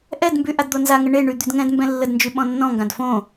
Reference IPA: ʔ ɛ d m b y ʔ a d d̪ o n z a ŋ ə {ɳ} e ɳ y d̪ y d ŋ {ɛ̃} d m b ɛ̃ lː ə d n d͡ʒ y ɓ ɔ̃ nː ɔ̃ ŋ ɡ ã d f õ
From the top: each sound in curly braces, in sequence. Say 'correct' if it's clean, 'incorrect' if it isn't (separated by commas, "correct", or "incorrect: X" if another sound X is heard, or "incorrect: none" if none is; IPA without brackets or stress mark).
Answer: correct, correct